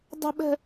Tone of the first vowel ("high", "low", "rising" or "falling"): high